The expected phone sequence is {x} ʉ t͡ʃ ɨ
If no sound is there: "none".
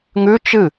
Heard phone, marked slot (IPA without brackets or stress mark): ŋ